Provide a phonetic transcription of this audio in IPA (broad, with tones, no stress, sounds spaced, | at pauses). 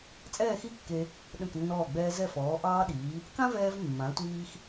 t͡sʼ ɛː˥˧ x i˥ kː e˧ | ɗ ə̃˧˩ k nː ɔː˧˩ ɡ͡b ɛː˧ z ɛ˧˩ f ɔː˩˧ ʔ ɑː˧ ɗ iː˩˧ | k ã˥ v ɛː˧ v mː ã˩˧ tʷ iː˧ x